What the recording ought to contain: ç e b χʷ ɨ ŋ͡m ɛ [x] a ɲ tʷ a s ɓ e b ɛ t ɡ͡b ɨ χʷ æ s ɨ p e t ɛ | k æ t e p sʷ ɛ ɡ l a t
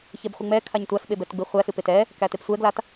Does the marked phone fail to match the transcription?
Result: yes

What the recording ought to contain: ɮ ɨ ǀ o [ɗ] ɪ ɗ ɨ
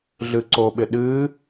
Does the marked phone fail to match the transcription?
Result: yes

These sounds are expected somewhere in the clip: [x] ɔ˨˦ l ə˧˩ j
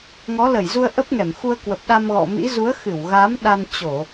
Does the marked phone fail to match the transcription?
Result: yes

